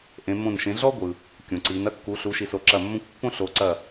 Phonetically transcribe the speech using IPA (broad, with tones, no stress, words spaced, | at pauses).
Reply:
ʔẽ˩˧mõ˧˩n ʃẽ˩˧ɮɔ˦ ɡʷɯ˩ | kʲõ˩ǀi˩˧n ɐ˦kːu˩˧ɬu˩˧ ʃi˩so˩ ǁɐ˧˩mːõ˦kʷ pːõ˦ɬo˩˧ǀɐ˧˩